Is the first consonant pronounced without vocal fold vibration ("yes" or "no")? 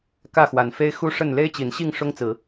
yes